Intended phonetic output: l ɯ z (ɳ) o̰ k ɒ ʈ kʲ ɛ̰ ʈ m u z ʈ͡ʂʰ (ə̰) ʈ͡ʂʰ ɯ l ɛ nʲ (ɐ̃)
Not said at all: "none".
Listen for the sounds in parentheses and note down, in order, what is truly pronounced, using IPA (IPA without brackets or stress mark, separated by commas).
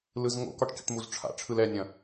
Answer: ŋ, a̰, ɐ̃